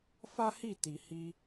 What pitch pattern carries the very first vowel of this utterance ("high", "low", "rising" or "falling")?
high